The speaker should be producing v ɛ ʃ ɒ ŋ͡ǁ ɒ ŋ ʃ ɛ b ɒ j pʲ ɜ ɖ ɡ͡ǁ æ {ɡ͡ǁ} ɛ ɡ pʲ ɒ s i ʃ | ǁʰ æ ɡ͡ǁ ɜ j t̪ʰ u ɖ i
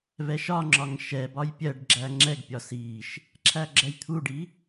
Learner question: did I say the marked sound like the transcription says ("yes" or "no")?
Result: no